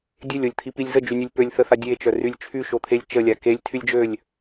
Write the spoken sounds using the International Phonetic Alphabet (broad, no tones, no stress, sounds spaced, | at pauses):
dʲ ø lʲ o lʲ t̪ʰ i p i lʲ z ə d͡ʒ y nʲ ø lʲ p ø lʲ θ ə θ a dʲ e t͡ʃ œ r y lʲ t͡ʃʰ y ʃ o t̪ʰ e lʲ t͡ʃ ə lʲ a k e lʲ tʰ y lʲ d͡ʒ ø lʲ